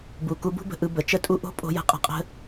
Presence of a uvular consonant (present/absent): present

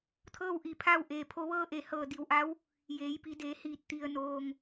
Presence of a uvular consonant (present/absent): absent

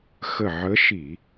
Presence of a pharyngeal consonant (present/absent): present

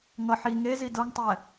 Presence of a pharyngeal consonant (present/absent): present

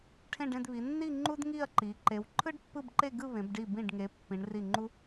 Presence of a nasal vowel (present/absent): present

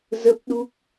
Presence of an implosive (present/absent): present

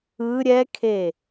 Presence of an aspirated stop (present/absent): present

